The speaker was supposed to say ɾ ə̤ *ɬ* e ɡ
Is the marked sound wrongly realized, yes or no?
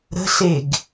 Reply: no